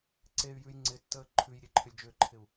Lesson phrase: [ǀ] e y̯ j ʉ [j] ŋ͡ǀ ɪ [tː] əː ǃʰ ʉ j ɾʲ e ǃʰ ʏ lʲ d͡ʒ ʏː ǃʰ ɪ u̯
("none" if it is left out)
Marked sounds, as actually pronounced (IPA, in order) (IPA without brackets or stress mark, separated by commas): ǀ, j, tː